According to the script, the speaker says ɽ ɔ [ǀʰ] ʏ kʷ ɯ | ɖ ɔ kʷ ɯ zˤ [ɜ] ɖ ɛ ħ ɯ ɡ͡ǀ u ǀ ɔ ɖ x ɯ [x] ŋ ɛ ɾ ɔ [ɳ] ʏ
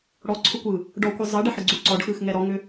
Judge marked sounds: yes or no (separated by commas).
yes, yes, yes, no